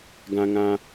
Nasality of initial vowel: nasal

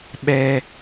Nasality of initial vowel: oral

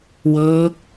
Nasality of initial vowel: oral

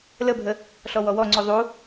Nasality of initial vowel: oral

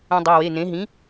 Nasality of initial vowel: nasal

